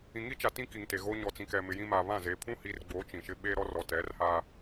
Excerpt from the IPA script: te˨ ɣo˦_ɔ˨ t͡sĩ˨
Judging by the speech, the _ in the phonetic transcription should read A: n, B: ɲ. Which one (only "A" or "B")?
B